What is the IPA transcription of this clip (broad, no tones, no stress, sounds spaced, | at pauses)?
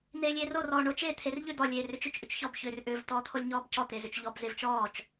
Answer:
n̪ eː lʲ eː r o r ɔː ɳ o t͡ʃ e t̪ʰ e r ʎ ʏ d̪ ɔ lʲ eː r ʏ t͡ʃ ʏ t͡ʃ ʔ ʏ t͡ʃ ç ɔ b ç ʏː r ʔ ʏː v t̪ ɔː t̪ʰ o lʲ ɲ ɔː b c ɔ t̪ e z ʏ t͡ʃ ʎ ɔ b z e v t͡ʃ ɔː t͡ʃ